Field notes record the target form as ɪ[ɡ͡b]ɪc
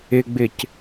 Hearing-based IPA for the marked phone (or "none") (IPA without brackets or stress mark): ɡ͡b